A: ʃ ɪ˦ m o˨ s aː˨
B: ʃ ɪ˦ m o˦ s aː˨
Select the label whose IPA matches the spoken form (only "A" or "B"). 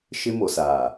A